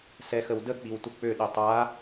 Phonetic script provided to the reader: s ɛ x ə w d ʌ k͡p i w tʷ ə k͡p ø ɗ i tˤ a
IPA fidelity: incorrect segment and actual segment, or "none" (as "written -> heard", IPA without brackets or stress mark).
ʌ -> ə